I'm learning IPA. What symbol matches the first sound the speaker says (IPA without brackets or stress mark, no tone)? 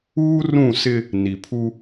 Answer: uː